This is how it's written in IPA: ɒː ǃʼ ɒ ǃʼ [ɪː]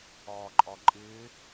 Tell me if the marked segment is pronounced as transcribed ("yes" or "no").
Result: yes